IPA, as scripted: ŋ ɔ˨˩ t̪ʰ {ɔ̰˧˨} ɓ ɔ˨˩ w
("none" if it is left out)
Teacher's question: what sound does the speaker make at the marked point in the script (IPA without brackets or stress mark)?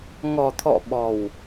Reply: ɔ̰˧˨